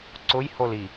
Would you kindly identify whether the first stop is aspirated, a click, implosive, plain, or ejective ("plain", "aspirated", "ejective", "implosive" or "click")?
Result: click